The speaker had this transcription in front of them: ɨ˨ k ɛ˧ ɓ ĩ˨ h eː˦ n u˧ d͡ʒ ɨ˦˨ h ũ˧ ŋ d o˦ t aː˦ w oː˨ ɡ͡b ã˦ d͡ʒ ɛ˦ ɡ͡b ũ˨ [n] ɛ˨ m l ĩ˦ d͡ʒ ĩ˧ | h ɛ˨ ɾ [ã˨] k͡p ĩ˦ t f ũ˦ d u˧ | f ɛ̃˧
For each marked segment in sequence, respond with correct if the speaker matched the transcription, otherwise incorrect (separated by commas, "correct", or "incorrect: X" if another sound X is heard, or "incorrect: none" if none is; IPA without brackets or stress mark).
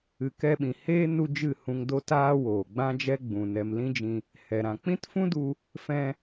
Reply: correct, correct